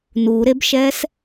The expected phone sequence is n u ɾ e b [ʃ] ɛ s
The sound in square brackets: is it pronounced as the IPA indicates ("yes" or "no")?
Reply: yes